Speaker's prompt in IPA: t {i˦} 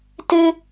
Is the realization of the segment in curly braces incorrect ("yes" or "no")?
yes